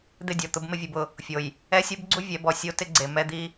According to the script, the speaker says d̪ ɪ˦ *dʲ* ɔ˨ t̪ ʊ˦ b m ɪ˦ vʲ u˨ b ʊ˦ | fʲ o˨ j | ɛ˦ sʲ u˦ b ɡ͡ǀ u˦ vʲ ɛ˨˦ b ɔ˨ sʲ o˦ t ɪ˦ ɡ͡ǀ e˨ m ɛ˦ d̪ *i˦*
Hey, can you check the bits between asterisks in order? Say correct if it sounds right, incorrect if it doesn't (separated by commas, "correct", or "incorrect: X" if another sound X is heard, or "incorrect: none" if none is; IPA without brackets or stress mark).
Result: correct, correct